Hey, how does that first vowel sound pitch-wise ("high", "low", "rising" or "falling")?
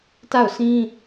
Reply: falling